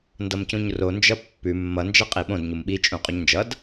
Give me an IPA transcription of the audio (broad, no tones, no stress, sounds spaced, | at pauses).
n d ʌ m c ũ ɲ r o n d͡ʒ ʌ pː ʉ mː ʌ n d͡ʒ ʌ qʼ i ɓ õ d ɲ u m ɓ i t͡ʃʼ ũ qʼ u ɲ n d͡ʒ ʌ d